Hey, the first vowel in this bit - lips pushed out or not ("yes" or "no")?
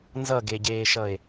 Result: no